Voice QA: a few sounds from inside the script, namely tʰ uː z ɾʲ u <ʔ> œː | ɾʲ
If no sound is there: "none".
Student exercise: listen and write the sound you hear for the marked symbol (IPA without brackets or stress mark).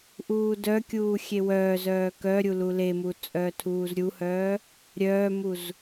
h